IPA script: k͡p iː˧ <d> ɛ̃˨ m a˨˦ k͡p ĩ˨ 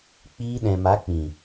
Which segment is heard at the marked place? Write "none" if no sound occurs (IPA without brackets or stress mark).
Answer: ɗ